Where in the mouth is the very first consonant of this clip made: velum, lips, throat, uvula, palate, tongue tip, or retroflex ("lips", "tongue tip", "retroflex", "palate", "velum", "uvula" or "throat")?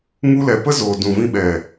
velum